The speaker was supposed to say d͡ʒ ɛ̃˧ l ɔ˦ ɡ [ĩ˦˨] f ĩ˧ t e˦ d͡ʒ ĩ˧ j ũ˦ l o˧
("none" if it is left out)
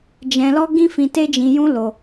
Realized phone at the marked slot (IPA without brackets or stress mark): ĩ˦